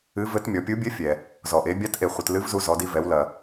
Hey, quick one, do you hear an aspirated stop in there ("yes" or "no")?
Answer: no